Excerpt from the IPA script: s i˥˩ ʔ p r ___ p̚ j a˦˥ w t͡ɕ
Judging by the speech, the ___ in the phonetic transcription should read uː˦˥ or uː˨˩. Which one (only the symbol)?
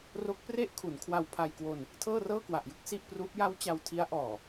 uː˦˥